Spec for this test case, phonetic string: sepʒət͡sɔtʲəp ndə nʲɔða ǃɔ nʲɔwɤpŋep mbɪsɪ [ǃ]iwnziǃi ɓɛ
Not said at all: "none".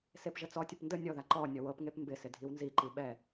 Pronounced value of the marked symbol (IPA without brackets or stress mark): dʱ